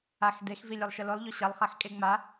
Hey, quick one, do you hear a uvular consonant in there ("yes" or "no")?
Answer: yes